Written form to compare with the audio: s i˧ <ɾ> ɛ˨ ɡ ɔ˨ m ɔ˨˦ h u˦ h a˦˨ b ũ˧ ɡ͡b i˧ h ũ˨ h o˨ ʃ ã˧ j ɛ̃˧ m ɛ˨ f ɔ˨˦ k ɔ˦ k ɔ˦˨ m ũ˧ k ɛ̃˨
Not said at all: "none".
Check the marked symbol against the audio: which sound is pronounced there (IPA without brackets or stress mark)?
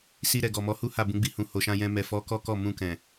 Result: ɾ